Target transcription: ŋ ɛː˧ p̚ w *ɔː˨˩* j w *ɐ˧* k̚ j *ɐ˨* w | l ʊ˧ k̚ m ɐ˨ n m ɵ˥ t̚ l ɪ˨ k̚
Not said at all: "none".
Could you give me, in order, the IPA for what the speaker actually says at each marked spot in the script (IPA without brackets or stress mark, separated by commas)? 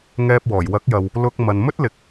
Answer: ɔː˨˩, ɐ˨˥, ɐ˨